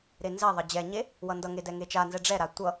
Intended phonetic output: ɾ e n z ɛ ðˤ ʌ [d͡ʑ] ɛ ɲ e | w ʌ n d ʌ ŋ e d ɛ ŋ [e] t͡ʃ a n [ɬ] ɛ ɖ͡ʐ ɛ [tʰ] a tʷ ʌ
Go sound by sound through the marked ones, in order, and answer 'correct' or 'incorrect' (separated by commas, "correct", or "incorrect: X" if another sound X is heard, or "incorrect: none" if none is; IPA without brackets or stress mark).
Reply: correct, correct, incorrect: z, incorrect: ɾ